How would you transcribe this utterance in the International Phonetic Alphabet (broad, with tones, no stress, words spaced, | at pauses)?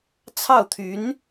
t͡sʰɑ˥˩ʊ̯t̪ʰy˧˥n